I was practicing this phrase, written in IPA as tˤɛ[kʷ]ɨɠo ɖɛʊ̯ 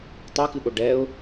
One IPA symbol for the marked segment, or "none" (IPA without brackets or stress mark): k